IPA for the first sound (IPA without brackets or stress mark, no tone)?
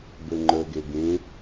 b